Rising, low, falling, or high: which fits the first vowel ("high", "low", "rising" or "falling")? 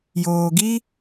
low